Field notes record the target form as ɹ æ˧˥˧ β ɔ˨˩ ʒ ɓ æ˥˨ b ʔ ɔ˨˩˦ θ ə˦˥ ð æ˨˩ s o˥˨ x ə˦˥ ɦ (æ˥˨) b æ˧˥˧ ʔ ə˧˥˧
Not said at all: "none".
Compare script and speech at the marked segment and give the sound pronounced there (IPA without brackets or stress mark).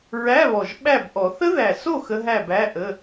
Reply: æ˥˨